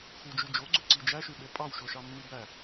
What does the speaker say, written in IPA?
x u d͡ʒ y d͡ʒ o ɡ͡ǀ ø ǀ i d͡ʒ æ ʃ y ɓ e pʼ ɑ w ʃ o ʃ ɑ mː i b æ

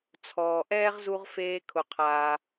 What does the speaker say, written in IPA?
t͡sʰ ɔː˩ ʔ ɛː˥ ʁ z u˧ ʁ f eː˧ kʰ ʊ˩ qʰ aː˩

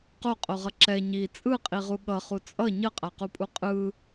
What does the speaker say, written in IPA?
q o qʼ o ʁ ʌ ǁ ɛ ɲ i t͡sʼ ɯ qʼ i ʁ u ɠ ʌ χ u t͡sʼ ʌ ɲ ʌ qʼ a q u pʼ u qʼ ɯ

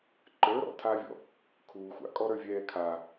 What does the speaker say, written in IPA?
ǃ ə˞ ɾ ɔ̰ tʰ aː vʲ ɔ̰ | kʰ uː xʷ a̰ kʼ ɔ ɾ ə˞ vʲ ɛː kʰ a

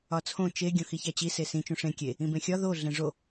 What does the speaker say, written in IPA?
ɒ t͡sʰ õ t͡ʃ e ɡʲ õ x i ç æ t͡ɕ i s e s ĩ t͡ʃ ũ ʂ ẽ kʲ e | ĩ b ẽ xʲ ɒ ð o ɮ ẽ ʐ o

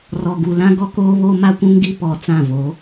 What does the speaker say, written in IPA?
r ɔ˨ ɡ u˨ l ã˦ ɡ ɔ˦ k oː˦ β oː˦ m a˦ kʷ ũ˦ ŋ ɡ i˦ p ɔ˨ t͡s ã˦˨ v o˨˦

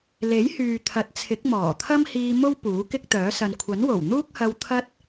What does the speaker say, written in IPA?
l e˨˥ j h yː˨ t̪ʰ ɐ˨˥ t̚ t͡sʰ ɪ˨˥ k̚ m ɔː˨˩ t̪ʰ ɐ˥ m h iː˧ m o˥ w p uː˨˥ k ɪ˥ k̚ t̪ œː˨˥ s ɐ˨ n kʷʰ ɐ˨˥ n w o˨˩ w n̪ uː˥ k̚ h ɐ˧ w t̪ʰ ɐ˥ t̚

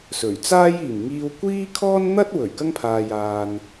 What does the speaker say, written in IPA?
s ɵ˨˩ ɥ t͡s aː˥ j iː˨˩ m ŋ iː˧ w kʷ iː˥ kʰ ɔː˥ n n̪ ɐ˥ t̚ w ɵ˨˩ ɥ k ɐ˥ ŋ pʰ aː˨ j aː˨ n

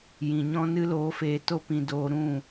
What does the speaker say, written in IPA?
j ĩ˨ ɲ ɔ̃˦ n ɨ˦ l oː˧ f eː˧ t o˦ p ĩ˧ d oː˧ ɾ ũ˦˨

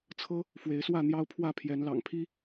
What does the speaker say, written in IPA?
t͡sʰ ɤ˦ | f w e˨˦ ɪ̯ s w ä˥˨ n̪ j ɑ˦ ʊ̯ pʰ w ä˥˨ pʰ j ɛ˨˦ n l ɑ̰˨˩ ŋ pʰ i˦

